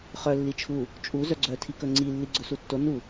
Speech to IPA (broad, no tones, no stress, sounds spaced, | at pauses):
χ œ lː i t͡ʃʰ u | t͡ʃʼ u z œ ɡ͡ǀ œ tʰ i k ɵ ŋ͡ǀ i lː i ɡ͡ǀ ɵ s u tː o n u